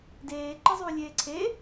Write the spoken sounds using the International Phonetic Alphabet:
d eː ǃ ɨ zˤ uː lʲ eː ǀʰ e

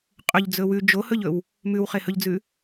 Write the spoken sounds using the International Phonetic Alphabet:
qʼ ɵ ʎ d͡z ɵ w ʉ d͡ʒ o h ɵ ʎ ɵ w | m ʉ w χ e h ɵ ʎ d͡z ʉ

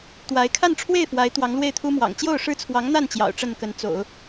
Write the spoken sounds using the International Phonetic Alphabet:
t̪ w a˧˥ ɪ̯ kʰ a˥˧ n ʈ͡ʂʰ w e˥˩ ɪ̯ f w a˧˥ ɪ̯ t̪ w ɑ˧˥ ŋ l w e˥˩ ɪ̯ t̪ʰ u˥ m w ɑ̰˨˩ ŋ t͡ɕ j o˥˩ ʊ̯ ʂ ɻ̩˥ t͡sʰ w ɑ˧˥ ŋ n̪ a˥˩ n t͡ɕ j ɑ̰˨˩ ʊ̯ ʈ͡ʂ ə˥˩ n k ə˧˥ n t͡s o̰˨˩˦ ʊ̯

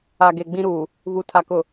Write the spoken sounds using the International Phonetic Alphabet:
a˨ ɡ e˨ ɡ͡b ĩ˦ ɾ uː˨ | β u˨ tʰ a˨ k ʊ˨

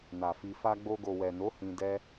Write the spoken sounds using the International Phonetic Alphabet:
n a˨ f i˧ f a˧ ɡ͡b o˧ ɡ o˨ w ɛ˨ n o˨˦ h ĩ˧ d ɛ˦

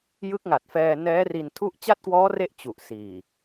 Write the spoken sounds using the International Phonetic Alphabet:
j ɯ˦˥ k̚ ŋ a˨˩ t̚ f ɛː˧ n ɛː˦˥ r i˧ n tʰ u˥˩ ʔ t͡ɕ a˥˩ t̚ k w ɔː˦˥ r e˦˥ ʔ t͡ɕ u˨˩ ʔ s iː˨˩

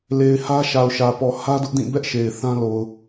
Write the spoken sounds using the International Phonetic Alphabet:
l e˨ ɪ̯ h ä˦ ʃ a˨ ʊ̯ ʃ ä˨ p ɔ˨ h ä˦ d ʊ˦ ʔ d ĩ˦˨ b ɛ˦ ʔ ʃ e˨ ɪ̯ θ ã˦ l o˨ ʊ̯

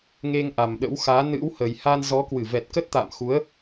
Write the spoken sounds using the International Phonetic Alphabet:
ŋ e˧ ŋ ʔ a˨˩ m ɗ ə̰˧˥ w x aː˨˦ n ɨ̰˧˥ w h ə˨˩ j h a˧ n z ɔ˨˦ k w ɨ˧˩ v ɛ˨˩ t̚ k ə˦˥ t̚ t̪ a̰ː˧˨ m x u˨˦ ə̯

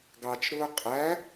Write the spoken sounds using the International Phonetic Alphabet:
ɡ ɑ t͡ʃ ɾ ʊː qʼ æ

